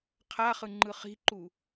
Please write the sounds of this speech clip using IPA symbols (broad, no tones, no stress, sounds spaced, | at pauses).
qʰ a χ ɯ ŋ͡ǃ ɯ χ i̤ ǃ u